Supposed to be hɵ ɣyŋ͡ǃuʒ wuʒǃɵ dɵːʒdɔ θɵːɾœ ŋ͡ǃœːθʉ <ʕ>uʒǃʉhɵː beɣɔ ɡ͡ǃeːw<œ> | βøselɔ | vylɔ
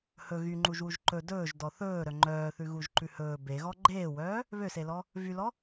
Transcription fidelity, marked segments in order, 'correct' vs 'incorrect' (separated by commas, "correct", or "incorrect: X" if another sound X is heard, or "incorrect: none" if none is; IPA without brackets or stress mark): incorrect: ɣ, incorrect: œː